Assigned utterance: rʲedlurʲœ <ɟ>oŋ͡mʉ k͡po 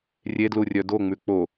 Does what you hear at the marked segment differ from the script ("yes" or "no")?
yes